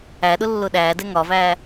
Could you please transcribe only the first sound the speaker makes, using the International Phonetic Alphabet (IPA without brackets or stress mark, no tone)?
æ